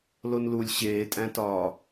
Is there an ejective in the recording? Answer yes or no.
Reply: yes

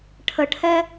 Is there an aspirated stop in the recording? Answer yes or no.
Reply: yes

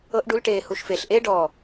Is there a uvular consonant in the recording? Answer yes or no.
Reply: no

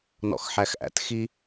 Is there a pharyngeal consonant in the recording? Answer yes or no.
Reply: yes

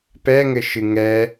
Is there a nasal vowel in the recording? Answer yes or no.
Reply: no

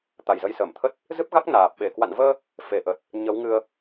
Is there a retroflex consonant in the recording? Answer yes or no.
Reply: no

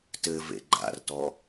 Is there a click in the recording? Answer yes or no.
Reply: yes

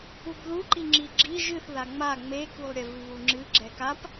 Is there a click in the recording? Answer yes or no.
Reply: yes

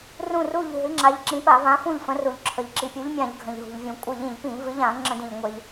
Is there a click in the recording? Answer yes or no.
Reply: yes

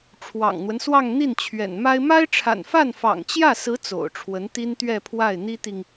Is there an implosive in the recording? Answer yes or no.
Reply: no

